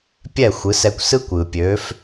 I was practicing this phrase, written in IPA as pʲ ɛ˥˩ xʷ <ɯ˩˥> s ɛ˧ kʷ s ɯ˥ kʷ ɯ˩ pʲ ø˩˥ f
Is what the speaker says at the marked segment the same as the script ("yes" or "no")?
yes